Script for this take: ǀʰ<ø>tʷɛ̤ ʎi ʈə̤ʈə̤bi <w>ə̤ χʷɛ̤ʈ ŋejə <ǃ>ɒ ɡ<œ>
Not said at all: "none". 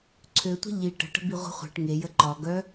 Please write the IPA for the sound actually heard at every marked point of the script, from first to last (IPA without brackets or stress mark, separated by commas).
ø, ʁʷ, ǃ, œ